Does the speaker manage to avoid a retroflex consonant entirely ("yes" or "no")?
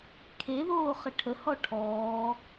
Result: no